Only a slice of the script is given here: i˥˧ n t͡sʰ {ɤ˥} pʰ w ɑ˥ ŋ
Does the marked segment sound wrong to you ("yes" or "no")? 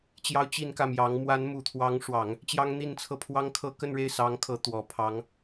yes